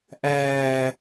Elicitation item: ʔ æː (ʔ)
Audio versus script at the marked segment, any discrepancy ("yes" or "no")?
yes